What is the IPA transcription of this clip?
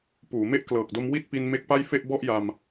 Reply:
puː˩˦me˥˩ʔklɤː˨˩k̚do˦˥m wi˥˩t̚pi˧n me˦˥k̚pa˥˩j fe˥˩ʔbɔ˥˩ʔja˧m

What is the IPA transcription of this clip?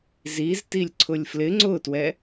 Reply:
ziztilʲ ǀʰʊlʲflɪ ŋ͡ǀʊtwɛ

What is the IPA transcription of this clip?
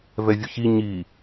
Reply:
vɛvʲʊçi ɲi

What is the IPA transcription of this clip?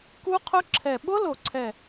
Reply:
ku˦˥qʰʊ˦˥ǁʰɛ˨˩ ɓʊ˦˥lo˨˩ǀʰɛ˨˩

